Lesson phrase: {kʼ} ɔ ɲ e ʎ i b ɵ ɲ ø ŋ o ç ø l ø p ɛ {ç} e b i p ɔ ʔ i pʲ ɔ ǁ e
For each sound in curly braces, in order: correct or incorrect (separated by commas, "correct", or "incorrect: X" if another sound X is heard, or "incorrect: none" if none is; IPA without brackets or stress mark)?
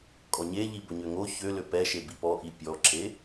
correct, incorrect: ʃ